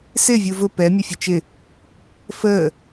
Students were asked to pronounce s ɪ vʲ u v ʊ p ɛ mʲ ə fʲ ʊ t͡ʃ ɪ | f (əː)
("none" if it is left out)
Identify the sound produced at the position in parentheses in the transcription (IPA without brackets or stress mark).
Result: əː